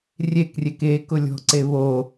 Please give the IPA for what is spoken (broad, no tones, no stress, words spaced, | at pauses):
rʲekrʲek ekʊlʲɔ̤ǀe βo